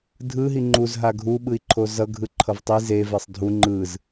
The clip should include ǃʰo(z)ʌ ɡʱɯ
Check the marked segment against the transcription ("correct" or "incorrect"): correct